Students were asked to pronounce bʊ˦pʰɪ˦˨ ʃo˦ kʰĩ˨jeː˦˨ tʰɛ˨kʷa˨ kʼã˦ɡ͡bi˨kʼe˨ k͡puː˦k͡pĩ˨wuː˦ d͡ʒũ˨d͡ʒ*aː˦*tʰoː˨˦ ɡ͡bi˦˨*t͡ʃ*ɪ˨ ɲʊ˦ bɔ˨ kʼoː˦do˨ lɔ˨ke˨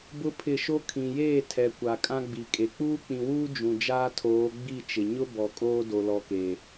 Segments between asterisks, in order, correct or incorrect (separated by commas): correct, correct